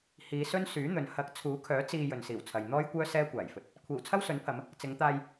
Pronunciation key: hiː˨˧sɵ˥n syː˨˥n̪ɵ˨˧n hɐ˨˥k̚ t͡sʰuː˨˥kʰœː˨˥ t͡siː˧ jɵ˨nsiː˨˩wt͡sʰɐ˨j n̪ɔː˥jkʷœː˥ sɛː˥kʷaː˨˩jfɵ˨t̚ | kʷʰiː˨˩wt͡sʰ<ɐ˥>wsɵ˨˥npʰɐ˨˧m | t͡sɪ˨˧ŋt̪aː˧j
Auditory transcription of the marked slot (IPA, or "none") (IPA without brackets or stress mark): ɐ˥